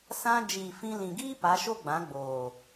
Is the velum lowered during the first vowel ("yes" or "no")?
yes